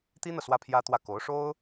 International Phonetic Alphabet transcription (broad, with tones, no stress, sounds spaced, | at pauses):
t̪ i˥ n̪ ɤ˨ s w ä˥ pʰ j ä˥ t̪ w ä˥˩ k o˧˥ ʊ̯ ʂ o˥ ʊ̯